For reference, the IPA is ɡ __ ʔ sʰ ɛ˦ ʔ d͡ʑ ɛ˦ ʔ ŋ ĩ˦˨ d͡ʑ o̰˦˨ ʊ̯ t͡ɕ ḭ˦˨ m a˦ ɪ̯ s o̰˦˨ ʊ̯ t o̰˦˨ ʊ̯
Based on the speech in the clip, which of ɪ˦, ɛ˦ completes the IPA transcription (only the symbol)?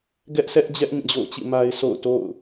ɛ˦